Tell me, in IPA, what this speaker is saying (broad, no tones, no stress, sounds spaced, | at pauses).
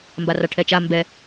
m b a r a ʈʰ ɛ t͡ʃ a m b ɛ